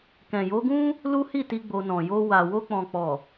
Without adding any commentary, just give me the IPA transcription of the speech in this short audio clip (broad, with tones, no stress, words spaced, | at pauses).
kɛ̃˨jo˨˦ɡũ˦ | lu˦hi˦˨ti˧ ɡ͡bo˧nɔ̃˨ jo˧wa˨ wo˧k͡pɔ̃˨k͡pɔ˨